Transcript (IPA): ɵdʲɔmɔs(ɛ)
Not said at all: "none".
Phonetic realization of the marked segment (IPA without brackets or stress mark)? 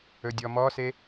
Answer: e